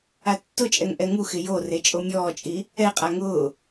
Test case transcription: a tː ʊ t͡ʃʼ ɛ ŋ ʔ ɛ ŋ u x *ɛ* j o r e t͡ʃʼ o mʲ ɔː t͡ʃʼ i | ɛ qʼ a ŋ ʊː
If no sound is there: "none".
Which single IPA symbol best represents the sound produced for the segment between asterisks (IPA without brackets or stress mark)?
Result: ɪ